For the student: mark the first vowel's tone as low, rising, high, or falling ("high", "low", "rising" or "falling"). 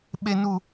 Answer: high